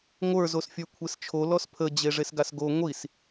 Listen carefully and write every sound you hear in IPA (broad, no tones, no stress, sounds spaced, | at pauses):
ŋʷ ə˞ z o s fʲ ə˞ kʷʰ e s t͡ʃʰ o l ɔ s pʰ ə d͡ʑ e ʐ e s ɡ a s ɡ o ŋʷ i s